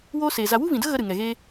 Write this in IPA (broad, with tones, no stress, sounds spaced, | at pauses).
w oː˦ s eː˨ z a˧ w u˦ v ĩ˨ d ə˦ ɣ ə˧ ɾ ɨ˨ ŋ ɛ˨ ɣ eː˦